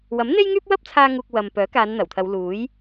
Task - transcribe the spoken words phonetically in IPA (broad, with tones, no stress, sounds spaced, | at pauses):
w ɐ˨˥ m n̪ e˥ j ŋ yː˥ p̚ w ɐ˥ p̚ t͡sʰ aː˥ ŋ uː˧ k̚ w ɐ˨ m p œː˨˥ k aː˨˧ n n̪ ɐ˨˩ w t̪ʰ ɐ˨˧ w l uː˨˥ j